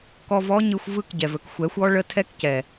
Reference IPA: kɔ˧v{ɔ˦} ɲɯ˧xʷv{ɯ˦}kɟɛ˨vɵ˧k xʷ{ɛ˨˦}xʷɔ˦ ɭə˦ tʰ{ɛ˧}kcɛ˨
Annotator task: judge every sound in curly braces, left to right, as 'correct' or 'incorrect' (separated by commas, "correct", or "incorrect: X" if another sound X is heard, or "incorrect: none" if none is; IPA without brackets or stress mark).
correct, incorrect: ɯ˦˨, correct, incorrect: ɛ˦